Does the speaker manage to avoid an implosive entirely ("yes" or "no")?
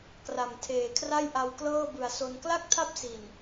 yes